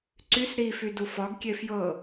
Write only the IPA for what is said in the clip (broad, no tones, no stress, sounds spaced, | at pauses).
ǀ y s ɾ i f y d u f ɒ ɡ kʲ e f j ɤ